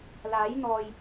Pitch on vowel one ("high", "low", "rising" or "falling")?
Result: rising